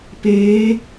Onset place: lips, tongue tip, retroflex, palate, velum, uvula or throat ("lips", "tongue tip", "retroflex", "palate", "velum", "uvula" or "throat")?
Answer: lips